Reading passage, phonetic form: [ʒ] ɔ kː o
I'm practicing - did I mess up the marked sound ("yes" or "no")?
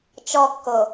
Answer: yes